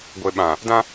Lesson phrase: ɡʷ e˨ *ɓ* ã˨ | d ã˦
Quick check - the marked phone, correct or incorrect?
correct